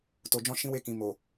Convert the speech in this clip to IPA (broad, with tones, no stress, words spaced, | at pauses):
to˨d͡ʒɔ̃˧ ʃĩ˧we˧kĩ˨ mo˨